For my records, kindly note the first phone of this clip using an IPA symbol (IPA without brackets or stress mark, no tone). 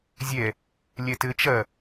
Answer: zʲ